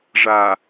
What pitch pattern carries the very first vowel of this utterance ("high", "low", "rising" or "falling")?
low